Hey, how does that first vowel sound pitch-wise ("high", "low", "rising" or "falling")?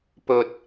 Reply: low